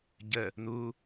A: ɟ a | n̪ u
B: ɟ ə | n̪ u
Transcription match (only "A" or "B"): B